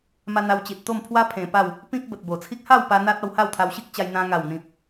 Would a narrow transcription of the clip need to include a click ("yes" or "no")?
no